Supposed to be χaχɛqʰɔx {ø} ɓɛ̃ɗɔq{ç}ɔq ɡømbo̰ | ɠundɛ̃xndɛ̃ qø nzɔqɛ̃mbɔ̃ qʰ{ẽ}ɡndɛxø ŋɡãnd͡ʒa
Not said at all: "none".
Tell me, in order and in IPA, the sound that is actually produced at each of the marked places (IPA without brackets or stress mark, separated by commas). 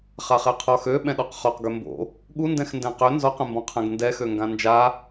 ø, χ, ɛ̃